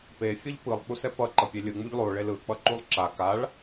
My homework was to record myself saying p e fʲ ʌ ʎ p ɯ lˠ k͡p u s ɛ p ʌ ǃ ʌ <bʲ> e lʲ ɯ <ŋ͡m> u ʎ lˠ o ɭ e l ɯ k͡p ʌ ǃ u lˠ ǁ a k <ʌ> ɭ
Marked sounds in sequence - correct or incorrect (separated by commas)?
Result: incorrect, correct, incorrect